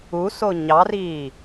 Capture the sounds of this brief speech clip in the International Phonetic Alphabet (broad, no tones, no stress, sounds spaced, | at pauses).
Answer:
u s o ɲ ɑ r iː